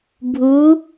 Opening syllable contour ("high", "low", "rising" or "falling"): rising